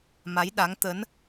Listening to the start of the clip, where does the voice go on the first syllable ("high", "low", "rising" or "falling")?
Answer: rising